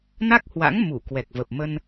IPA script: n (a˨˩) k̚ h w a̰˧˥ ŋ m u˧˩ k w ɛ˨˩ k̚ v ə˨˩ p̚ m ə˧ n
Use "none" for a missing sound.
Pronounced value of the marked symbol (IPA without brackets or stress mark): a˦˥